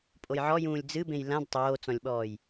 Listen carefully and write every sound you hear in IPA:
pʼojʕɔjũːlʲ d͡zɨbẽj lãd tˤoːt͡sɔ̃lʲɓɔːj

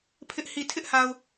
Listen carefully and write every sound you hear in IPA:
pʰɪ˦ʔ hi˨tʰɪ˦ʔha˨ʊ̯

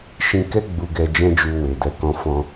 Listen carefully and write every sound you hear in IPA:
ʃĩ˦ kɛ˦ ɡ͡bu˧ɡɛ˧ d͡ʒɛ̃˦d͡ʒu˧we˨dɛ˧ kɔ̃˧fɔ̃˧

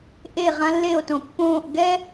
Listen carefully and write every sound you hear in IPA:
ʔe˦˨ʁã˦lːe˦˨o̯tõ˨ pːõː˦˨ʔ ɡɛ˦

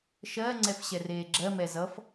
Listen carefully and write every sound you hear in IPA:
ʃɜ ŋ͡ǀɛfɕɛreːɡ͡ǁɜ mɛzʌf

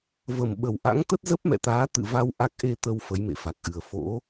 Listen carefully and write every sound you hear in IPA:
və˨˩mɓə˨˩wʔa̰˧˥ŋ t̪ə˦˥t̚zə˦˥p̚mɛ̰˧˨t̪aː˨˦ t̪ɨ̰˧˨va˧w ʔa˦˥k̚ ʔe˧t̪ə˧w fə˨˦jmḛ˧˨fa˨˩k̚ʔɨ˨˩ə̯ fo̰˧˥

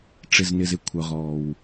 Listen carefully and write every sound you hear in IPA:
ʈ͡ʂɪ˩znɪ˩zɪ˩ kʷʰœ˩ʁɔː˩w

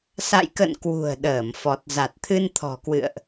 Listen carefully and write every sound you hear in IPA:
sa̰˧˨jkə̰˧˨n kwṳ˨˩ə̯ ɗəː˧˩mfɔ˨˩t̚ za˨˩t̚t̪ʰɨ˧nt̪ʰɔ̤˨˩kwɨ̰˧˨ə̯ʔ

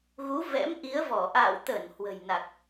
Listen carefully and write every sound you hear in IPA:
ɣu˨˦vɛ̰˧˥m ʔi˨˦ə̯vɔ˧˩ ʔa̰ː˧˨wt̪ə˧˩n hwə̤˨˩jna˨˩k̚

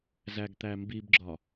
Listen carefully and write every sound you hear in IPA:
zæɡt̪æmbibɡ͡ǁɒ

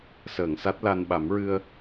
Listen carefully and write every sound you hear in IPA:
səː˨˩˨ŋsa˦˥t̚la˧n ɓa˨˩˦mɹɨ˧ə̯

